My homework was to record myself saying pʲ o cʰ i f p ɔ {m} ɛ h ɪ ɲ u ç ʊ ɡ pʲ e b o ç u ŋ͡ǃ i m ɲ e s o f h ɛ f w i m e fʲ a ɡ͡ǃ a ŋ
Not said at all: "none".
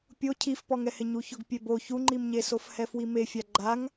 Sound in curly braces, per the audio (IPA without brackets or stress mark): ŋ